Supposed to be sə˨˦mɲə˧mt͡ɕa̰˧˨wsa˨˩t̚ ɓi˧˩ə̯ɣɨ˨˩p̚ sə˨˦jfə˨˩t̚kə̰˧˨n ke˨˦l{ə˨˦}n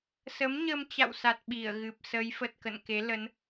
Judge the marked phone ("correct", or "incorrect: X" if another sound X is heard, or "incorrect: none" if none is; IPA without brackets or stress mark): correct